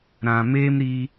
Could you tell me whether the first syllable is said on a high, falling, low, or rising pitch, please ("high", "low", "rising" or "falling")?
low